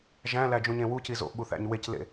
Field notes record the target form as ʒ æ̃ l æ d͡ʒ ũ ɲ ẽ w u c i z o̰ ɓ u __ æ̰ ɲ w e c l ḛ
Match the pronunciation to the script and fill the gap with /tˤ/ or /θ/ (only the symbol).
θ